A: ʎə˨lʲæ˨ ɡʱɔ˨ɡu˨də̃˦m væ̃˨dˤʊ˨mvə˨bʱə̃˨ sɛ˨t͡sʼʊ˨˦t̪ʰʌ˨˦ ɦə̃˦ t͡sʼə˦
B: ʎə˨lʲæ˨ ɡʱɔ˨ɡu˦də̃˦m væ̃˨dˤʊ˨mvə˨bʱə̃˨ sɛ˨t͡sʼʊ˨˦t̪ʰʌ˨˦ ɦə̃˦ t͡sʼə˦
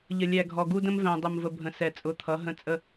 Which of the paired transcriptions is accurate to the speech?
B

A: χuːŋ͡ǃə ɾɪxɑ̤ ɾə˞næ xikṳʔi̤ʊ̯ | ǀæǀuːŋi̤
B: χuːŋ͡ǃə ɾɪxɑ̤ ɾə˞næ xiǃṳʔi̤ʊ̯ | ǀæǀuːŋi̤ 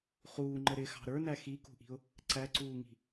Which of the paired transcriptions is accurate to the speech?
A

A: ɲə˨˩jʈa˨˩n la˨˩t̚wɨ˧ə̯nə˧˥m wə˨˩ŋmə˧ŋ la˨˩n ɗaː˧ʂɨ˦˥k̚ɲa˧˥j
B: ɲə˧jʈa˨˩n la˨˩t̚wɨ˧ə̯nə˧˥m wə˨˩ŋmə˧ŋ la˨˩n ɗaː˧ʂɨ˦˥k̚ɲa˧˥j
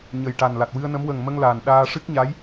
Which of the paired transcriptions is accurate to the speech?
A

